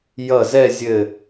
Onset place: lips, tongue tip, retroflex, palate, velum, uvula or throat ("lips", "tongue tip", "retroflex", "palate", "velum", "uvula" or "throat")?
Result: palate